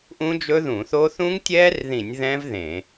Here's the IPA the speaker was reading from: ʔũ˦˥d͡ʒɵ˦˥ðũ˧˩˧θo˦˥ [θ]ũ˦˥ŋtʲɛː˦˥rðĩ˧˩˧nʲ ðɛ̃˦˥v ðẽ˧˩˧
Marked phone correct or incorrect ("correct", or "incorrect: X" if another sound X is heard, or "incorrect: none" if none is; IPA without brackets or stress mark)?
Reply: correct